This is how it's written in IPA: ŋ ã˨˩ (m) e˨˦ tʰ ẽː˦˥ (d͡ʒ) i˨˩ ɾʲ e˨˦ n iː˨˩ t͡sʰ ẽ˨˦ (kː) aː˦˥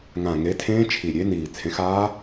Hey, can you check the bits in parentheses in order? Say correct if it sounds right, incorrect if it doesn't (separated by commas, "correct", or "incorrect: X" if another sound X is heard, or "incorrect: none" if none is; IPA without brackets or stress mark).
incorrect: ŋ, incorrect: t͡ʃʰ, incorrect: x